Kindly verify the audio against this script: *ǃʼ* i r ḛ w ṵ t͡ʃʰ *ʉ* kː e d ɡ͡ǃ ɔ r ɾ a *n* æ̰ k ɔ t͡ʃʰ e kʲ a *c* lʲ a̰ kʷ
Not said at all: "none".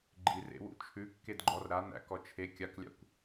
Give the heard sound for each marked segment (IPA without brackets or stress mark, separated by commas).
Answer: ɡ͡ǃ, ʉ, n, k